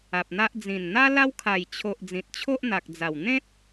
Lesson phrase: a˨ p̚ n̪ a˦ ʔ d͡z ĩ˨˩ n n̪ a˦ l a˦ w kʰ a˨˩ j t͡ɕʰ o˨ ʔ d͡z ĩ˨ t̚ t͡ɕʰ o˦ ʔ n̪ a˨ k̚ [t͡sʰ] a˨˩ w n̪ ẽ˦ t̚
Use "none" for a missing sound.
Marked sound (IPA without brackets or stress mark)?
d͡z